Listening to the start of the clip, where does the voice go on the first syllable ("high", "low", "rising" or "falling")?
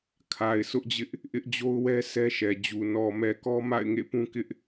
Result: low